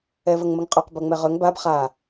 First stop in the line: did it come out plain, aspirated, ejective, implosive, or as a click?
ejective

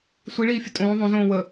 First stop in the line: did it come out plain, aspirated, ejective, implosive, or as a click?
ejective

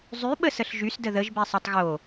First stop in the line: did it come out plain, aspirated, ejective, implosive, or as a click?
implosive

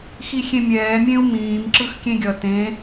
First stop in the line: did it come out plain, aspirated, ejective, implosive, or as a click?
click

